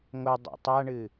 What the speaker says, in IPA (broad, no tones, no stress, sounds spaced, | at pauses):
ŋ o dˤ ḛ tˤ a ɳ ɨ